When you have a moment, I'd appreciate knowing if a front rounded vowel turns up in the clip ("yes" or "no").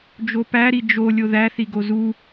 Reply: no